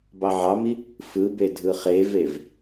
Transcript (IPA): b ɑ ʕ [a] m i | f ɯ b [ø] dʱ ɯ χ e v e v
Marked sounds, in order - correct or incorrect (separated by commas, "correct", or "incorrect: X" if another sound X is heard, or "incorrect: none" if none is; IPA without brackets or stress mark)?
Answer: incorrect: ɑ, incorrect: e